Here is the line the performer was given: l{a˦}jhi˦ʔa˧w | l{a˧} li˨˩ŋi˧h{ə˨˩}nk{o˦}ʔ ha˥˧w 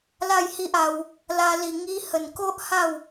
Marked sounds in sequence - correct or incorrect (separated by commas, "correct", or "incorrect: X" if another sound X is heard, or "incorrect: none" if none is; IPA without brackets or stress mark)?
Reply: incorrect: a˥˧, correct, correct, correct